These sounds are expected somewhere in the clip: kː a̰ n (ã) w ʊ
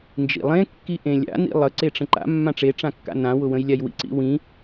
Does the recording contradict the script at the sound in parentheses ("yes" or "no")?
no